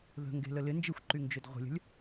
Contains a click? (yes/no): yes